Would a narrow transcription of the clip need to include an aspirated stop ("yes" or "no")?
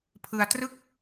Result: yes